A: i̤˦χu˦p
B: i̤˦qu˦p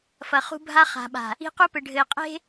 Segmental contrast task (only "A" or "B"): B